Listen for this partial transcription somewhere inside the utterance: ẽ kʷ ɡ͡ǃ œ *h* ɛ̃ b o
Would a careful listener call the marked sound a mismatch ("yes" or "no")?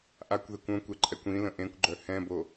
no